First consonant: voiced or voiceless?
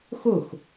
voiceless